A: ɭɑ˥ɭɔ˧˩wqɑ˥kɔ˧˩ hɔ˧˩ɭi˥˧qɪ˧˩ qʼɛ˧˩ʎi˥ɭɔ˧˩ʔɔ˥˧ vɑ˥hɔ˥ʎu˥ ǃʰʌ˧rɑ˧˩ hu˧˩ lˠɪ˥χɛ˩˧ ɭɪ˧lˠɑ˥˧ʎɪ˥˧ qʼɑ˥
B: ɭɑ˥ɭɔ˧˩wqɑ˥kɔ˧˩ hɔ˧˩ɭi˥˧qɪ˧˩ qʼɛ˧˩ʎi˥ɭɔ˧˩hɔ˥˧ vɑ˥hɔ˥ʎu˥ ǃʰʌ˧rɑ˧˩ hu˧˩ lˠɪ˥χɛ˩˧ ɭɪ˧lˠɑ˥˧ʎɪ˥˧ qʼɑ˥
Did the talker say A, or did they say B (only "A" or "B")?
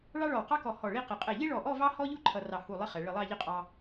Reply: A